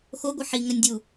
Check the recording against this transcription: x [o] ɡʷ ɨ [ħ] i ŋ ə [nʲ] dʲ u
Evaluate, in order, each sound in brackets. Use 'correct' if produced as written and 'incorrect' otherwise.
correct, correct, correct

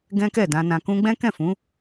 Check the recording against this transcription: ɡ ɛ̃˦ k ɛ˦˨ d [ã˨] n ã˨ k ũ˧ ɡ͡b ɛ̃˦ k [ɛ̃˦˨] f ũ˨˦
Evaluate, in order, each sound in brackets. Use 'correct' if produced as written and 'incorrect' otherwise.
incorrect, correct

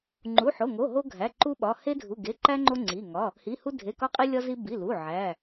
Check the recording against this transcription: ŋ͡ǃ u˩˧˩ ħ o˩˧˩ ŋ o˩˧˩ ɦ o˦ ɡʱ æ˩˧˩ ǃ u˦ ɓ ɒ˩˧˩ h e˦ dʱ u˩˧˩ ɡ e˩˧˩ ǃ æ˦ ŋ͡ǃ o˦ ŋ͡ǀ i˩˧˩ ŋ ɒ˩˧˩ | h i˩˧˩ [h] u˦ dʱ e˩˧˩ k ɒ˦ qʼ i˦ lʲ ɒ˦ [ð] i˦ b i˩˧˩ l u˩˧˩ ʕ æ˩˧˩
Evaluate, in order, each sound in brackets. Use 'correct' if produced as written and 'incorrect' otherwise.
correct, incorrect

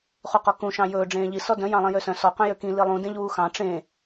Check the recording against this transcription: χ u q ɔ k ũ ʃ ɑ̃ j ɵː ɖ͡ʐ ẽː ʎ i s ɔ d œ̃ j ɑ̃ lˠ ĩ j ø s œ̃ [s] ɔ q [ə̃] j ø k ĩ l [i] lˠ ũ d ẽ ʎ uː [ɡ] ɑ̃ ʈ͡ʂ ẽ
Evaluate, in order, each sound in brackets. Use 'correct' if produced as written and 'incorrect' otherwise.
correct, incorrect, correct, incorrect

